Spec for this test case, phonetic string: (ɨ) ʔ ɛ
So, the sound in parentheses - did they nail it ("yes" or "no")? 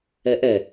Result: no